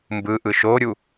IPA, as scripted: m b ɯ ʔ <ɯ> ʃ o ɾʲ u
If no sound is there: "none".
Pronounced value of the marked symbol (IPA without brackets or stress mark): ɯ